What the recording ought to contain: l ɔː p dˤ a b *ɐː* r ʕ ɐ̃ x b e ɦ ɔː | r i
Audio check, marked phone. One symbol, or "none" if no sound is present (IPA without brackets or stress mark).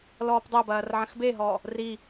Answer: ɐː